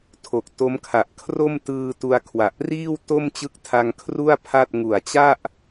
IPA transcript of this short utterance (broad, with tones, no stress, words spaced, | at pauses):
tʰo˨˩k̚to˦˥m kʰa˨˩ʔkʰro˥˩m tɯː˧tu˧a̯kʰwa˨˩ʔ riː˥˩wto˥˩m t͡ɕɯ˦˥k̚tʰa˧ŋ kʰru˥˩a̯ pʰa˥˩t̚ ŋu˨˩a̯t͡ɕa˥˩ʔ